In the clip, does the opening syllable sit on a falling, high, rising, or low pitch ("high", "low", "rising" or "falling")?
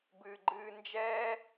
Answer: low